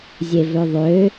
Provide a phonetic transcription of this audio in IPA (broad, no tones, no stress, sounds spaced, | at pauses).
zʲ e v ø ðˤ ø